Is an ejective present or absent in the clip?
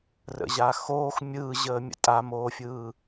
present